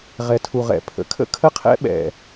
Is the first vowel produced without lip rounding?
yes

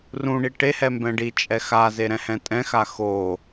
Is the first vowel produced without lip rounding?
no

